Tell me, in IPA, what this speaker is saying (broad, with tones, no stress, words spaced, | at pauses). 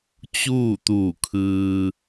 t͡ɕuː˥˨t̪u˧˩kʰɯː˧